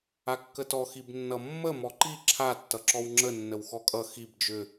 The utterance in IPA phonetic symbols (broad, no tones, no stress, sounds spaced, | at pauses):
a kː ə t ɔ x i b nː ʌ mː ə m ɔ ǃ i ǁʰ a tː ʌ ǁ ɔ w ŋ͡ǁ ə nː ə w x ɔ kʼ ʌ x i b d͡ʒ ʏ